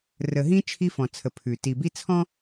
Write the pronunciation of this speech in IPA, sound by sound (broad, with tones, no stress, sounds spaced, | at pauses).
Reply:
r ə˨ ɦ ĩ˦ t͡ʃʰ i˦ f ɔ̃˨ t͡sʰ ə˨ pʰ ʉ˨ t i˨ b i˦ t͡sʰ ɔ̃˦